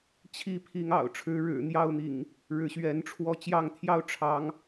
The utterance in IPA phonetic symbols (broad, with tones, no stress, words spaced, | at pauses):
t͡ɕʰi˥˨pʰi˨˦ŋɑ̰˨˩ʊ̯ ʈ͡ʂʰɻ̩˨˦ɻɻ̩˨˩ n̪jɑ˥˨ʊ̯n̪ḭ˨˩ŋ | ɻɻ̩˨˦ɕɥɛ˨˦nʈ͡ʂʰwɔ˥˨ t͡ɕjɑ˥˨ŋt̪ʰjɑ˦ʊ̯ ʈ͡ʂʰɑ˨˦ŋ